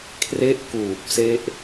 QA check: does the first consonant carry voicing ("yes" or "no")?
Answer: no